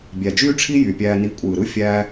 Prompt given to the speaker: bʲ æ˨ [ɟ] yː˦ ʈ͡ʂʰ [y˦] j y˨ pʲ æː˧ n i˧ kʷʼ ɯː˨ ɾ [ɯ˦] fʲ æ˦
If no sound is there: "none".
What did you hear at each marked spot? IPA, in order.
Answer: d͡ʒ, i˦, ɯ˦

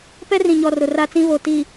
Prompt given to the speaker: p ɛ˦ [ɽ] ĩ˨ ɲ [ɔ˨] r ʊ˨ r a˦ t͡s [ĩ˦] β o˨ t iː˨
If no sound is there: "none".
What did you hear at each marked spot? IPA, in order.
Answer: r, ɔ˨, ĩ˦

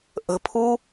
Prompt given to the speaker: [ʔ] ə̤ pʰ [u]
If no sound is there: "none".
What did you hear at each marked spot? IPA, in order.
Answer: ʔ, u

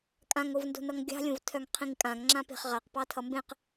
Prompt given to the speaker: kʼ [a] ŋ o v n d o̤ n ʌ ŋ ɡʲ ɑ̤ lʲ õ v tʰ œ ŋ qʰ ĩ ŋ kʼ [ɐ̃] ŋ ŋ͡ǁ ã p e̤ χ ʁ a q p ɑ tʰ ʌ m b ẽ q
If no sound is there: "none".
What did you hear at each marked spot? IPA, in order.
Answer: ã, ã

